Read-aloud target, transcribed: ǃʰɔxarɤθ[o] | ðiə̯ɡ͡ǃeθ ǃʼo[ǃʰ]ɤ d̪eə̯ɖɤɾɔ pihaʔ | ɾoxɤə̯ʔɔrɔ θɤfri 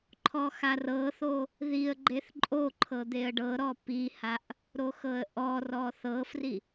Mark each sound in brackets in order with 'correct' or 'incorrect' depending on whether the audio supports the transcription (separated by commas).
correct, correct